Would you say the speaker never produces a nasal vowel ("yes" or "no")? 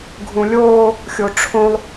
no